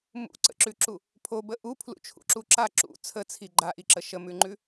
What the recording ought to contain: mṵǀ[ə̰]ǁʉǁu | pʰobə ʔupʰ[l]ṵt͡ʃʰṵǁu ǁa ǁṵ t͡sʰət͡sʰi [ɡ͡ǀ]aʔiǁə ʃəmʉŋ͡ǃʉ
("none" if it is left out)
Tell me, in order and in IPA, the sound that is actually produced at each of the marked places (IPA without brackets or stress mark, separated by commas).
ə̰, l, ɡ͡ǃ